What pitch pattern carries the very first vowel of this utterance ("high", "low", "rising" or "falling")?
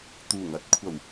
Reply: low